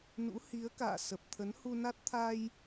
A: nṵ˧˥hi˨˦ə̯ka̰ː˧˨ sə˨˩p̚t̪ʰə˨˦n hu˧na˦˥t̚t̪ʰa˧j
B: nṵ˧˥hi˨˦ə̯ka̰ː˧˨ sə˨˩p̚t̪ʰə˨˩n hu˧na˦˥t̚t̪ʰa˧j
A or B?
A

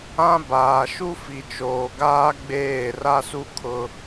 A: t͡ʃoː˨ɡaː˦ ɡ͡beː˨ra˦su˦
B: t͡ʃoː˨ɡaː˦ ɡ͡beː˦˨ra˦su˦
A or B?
B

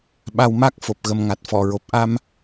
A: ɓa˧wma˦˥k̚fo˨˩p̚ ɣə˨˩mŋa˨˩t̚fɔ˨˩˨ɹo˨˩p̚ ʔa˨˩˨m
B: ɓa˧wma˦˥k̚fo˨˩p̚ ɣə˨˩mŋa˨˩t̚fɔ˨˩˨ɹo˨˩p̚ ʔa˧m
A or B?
B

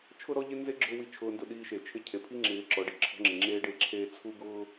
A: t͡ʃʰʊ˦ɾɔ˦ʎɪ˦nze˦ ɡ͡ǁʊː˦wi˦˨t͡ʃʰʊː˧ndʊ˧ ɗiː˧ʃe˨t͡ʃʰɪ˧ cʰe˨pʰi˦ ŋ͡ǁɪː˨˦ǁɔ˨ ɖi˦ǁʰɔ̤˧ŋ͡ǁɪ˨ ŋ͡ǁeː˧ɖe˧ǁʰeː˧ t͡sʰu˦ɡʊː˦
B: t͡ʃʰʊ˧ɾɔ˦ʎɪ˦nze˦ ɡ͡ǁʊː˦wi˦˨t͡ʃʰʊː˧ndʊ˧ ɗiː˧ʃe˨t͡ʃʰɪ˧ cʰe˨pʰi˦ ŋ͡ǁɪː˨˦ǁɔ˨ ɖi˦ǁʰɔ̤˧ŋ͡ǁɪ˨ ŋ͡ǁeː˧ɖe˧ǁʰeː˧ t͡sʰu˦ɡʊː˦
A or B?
A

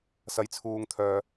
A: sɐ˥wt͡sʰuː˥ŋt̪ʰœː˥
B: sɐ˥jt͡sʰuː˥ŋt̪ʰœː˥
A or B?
B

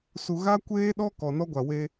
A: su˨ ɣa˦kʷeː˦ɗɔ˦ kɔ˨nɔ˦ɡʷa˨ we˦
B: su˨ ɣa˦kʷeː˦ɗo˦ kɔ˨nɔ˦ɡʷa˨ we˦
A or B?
A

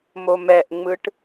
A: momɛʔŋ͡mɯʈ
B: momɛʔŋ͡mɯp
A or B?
A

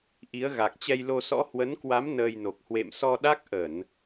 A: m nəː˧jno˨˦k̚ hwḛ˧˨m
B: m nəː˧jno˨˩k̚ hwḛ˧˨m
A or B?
B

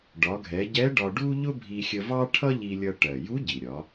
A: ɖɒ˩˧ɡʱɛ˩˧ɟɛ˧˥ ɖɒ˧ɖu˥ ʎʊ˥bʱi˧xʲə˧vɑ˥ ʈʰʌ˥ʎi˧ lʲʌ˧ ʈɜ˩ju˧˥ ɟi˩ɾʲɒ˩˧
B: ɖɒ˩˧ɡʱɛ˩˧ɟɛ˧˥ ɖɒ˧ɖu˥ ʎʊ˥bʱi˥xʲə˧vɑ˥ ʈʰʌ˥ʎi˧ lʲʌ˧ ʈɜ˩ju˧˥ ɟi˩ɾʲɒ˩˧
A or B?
A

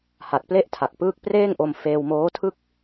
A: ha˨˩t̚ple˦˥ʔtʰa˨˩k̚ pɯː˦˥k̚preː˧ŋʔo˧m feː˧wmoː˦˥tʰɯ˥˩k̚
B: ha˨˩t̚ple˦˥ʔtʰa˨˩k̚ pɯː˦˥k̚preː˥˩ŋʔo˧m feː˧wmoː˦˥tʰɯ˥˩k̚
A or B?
B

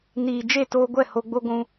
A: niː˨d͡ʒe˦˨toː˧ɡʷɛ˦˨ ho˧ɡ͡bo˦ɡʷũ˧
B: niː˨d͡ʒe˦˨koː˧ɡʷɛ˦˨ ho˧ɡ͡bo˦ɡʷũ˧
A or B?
A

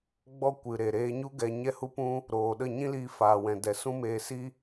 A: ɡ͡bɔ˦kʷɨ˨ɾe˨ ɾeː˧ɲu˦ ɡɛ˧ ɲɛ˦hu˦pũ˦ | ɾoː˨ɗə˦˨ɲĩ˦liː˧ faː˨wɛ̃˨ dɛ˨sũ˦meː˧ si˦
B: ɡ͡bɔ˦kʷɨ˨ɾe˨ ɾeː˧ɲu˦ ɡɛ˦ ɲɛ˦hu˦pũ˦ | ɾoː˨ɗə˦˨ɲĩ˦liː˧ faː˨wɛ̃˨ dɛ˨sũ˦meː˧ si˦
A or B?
A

